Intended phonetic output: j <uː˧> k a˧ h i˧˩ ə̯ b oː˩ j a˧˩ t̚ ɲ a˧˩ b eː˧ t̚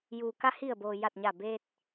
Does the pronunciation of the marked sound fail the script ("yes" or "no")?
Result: yes